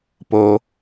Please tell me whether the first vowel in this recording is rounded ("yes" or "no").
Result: yes